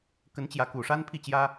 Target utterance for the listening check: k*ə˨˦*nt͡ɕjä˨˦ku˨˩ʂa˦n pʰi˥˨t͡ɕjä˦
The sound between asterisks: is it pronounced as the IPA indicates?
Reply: yes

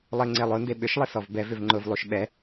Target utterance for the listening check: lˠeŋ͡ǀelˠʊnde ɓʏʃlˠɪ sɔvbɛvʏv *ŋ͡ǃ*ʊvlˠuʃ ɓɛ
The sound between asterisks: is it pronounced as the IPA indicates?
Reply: yes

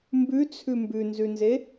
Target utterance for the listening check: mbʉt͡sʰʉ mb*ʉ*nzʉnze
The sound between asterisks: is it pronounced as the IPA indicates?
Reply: yes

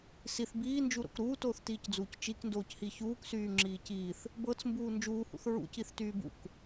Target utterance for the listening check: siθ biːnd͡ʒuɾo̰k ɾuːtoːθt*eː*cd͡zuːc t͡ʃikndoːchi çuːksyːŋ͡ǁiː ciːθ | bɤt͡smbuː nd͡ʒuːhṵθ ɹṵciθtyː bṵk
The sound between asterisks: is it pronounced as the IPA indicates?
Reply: no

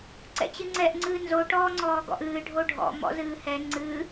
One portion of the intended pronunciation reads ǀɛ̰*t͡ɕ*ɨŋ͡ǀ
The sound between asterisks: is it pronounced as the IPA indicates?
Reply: yes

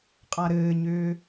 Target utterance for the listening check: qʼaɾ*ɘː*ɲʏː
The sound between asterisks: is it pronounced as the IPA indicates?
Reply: yes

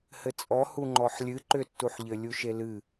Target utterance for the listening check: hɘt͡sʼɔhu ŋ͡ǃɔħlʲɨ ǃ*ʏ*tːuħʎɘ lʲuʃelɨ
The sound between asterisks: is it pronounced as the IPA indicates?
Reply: yes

